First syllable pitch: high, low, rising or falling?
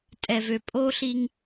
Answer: low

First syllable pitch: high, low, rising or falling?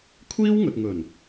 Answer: high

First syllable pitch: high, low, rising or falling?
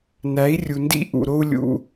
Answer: rising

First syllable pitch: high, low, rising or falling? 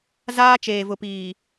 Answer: high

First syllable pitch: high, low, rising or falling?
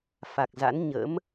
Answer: low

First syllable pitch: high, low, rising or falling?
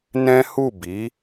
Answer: high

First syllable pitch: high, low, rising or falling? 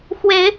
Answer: rising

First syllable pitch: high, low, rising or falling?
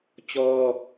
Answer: high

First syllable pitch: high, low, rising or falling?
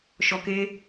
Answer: low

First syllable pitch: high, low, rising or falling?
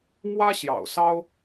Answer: high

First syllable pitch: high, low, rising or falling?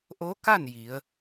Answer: rising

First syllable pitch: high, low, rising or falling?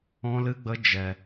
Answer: high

